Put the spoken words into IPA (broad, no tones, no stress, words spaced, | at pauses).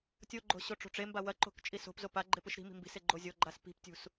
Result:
tʲoɡ͡ǃo̤ ɕoʈ͡ʂo̤ʈ͡ʂemba wɐǃo̤k t͡ʃʼiso̤pzo pa ɡ͡ǃepɨʃɾi̤mi̤ mbi̤se ɡ͡ǃozʲoɡ͡ǃas pi̤ptʲṳs